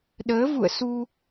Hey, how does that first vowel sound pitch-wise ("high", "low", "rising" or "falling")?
rising